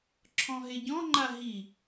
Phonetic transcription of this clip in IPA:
ǁʰ ɔ̃ ɦ e ɟ ɔ̃ ŋ͡ǃ a ɦ i

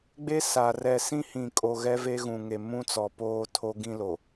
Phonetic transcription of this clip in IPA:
ɡ͡b e˦ s a˨ r ɛ˨ s ĩ˦ h ĩ˨ kʼ o˨ ɣ ɛ˦ v e˦ ɣ ũ˨ ŋ e˨ m ũ˦ t͡s ɔ˨ p oː˦ tʰ o˦ ɡ ĩ˦ l o˨

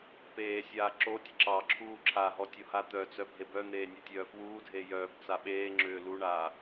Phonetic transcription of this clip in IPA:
p eː sʲ aː ǁ o tʲ ə ǁ ɑ ǁʰ uː ǁʰ a ɦ ɔ tʲ o h a t̪ œ t͡s œ bʱ e b œ n̪ eː nʲ o tʲ œː f w uː dʱ eː j œː b t͡s a ɓ eː ŋ͡ǁ ʏː l u ɳ aː

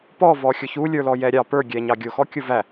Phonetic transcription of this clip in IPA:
p ɔ v ɔ xʲ ʊ ç u lʲ ə˞ l ɔ j ɛ ɾʲ ɑ p ə˞ ɡʲ ɛ ɲ ɑ ɡʲ ʊ x ɔ kʲ ʊ v æ

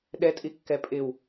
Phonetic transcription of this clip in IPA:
ɗ ɛ tʼ i kː ɛ pʼ ɪ w

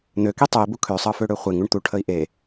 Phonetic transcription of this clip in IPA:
n̪ ø k i tˤ ø i̯ b u kʰ ø sˤ ɤ f ø ɽ ø χʷ e ŋ u ɳ t̪ u ʈʰ ə i̯ ʔ e

